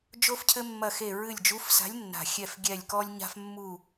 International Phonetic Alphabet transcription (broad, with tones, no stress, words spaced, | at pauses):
d͡ʒo˥fcʰɘ˥mːɐ˦˨xe˦˨ ɹɨ˦˨lʲ d͡ʒu˧˥fsa̤˧˥lʲnːa̤˨˩ xʲɛ˦˨fɡʲɛ˦˨lʲkɔ˥lʲɲa̤˥f mːu˦˨